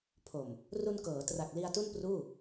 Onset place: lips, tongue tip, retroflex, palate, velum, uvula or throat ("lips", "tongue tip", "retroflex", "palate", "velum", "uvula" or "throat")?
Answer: lips